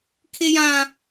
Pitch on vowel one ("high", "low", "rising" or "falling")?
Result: high